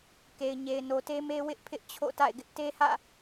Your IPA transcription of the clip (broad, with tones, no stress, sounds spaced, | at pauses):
k e˨ ɪ̯ ɲ e˨ ɪ̯ n o˨ t e˦ m e˦ w ɪ˦ ʔ pʰ ɪ˦ ʔ t͡ɕʰ o̰˦˨ t a̰˦˨ ɪ̯ ɡ ɪ˦ ʔ t e˦ h ä̰˦˨